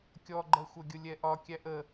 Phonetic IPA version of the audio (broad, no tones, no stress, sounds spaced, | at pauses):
kʲ ɔ ɡ͡ǃ ɜ xʷ ʌ ɡʲ ʊ lʲ ɛ ʔ ɒ kʲ æ ʔ ə